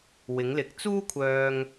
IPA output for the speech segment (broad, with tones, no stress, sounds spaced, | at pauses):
w ɪ˨˧ ŋ l ɪ˨˥ k̚ t͡s uː˥ kʷʰ œː˧ ŋ